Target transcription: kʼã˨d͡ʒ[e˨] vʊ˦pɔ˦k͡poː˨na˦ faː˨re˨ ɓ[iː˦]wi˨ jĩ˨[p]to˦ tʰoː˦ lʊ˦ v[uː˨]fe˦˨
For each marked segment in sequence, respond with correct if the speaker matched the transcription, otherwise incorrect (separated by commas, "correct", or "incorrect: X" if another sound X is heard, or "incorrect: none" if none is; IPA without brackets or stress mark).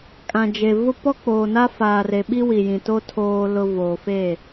correct, incorrect: i˦, incorrect: none, incorrect: oː˨